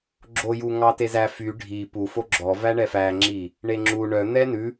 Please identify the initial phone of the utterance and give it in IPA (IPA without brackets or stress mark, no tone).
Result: ɡ͡ǁ